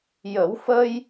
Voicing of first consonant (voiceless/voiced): voiced